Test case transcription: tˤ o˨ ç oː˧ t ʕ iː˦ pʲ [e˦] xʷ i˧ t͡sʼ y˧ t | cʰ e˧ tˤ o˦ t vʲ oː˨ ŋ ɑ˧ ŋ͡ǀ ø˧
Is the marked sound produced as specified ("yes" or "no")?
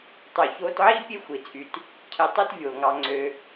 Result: yes